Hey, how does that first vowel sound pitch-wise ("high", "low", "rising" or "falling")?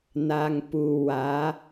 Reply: low